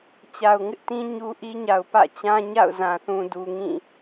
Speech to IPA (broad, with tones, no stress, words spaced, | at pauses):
t͡ɕa˨ʊ̯ŋɪ˦ʔtĩ˦ ɲu˦ʔi˦ ɲa˨ʊ̯pä̰˦˨t͡ɕã˦ɲa̰˦˨ʊ̯ zã˨θũ˨ du˨ŋĩ˦˨